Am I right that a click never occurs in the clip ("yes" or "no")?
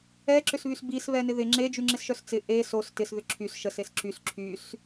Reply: no